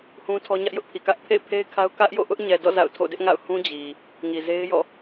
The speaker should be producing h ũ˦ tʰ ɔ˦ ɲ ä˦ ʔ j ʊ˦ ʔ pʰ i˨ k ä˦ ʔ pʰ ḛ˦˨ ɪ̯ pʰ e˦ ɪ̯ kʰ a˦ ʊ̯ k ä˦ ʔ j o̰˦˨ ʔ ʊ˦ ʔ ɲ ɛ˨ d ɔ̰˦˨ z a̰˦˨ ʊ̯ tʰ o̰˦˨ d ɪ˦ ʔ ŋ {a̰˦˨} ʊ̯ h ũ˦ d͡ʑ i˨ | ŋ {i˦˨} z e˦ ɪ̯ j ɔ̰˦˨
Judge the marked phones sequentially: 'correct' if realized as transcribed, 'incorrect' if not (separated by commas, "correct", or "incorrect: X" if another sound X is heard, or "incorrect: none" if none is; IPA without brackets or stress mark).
correct, incorrect: i˨